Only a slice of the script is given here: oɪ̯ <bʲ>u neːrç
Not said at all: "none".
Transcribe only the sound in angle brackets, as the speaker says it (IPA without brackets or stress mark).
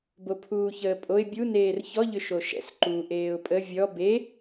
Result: bʲ